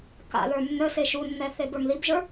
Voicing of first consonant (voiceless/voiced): voiceless